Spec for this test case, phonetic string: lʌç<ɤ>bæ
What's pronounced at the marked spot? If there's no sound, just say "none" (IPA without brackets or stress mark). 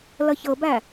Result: ɤ